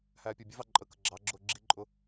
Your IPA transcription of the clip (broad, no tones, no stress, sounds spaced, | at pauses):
h æː pʲ ʊː bʲ ʊ v ɑ ǃʼ ə k ə ɡ͡ǁ ɑ ɡ͡ǁ ʊː ɡ͡ǁ i ǃʼ ʊ